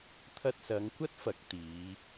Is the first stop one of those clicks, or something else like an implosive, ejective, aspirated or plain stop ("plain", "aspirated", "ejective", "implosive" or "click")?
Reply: aspirated